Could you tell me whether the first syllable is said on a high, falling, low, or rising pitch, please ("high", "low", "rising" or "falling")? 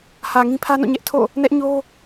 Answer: low